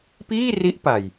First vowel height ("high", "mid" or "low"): high